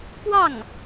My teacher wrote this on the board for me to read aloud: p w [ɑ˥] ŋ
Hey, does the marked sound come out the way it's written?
no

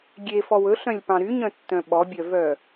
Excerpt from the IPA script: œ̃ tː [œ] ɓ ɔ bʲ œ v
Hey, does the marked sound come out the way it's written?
no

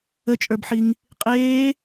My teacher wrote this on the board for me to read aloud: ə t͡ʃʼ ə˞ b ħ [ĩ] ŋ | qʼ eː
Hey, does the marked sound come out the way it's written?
no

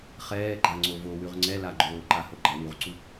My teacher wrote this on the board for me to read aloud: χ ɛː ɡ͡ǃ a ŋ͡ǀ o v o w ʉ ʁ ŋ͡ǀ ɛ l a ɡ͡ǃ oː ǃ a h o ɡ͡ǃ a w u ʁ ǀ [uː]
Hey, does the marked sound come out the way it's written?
no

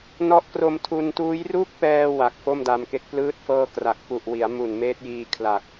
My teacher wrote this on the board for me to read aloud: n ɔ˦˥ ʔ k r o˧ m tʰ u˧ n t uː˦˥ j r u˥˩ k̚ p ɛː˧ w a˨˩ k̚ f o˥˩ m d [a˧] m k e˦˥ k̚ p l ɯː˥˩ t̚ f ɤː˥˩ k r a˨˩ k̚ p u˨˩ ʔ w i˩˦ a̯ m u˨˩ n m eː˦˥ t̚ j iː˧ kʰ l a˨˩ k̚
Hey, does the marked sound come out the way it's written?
yes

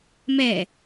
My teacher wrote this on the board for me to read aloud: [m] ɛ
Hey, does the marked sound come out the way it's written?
yes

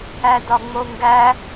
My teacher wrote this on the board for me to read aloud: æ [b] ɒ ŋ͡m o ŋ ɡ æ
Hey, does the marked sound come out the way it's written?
no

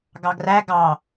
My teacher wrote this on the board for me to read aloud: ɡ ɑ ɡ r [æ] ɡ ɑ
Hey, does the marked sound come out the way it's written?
yes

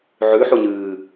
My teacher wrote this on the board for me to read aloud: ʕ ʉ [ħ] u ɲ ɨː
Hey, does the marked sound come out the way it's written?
yes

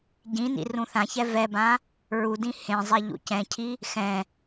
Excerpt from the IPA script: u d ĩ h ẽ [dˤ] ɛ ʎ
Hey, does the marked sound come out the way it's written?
no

